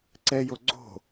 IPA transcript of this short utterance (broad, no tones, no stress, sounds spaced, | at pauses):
ǀ ɛ j o ɡ͡ǀ o̤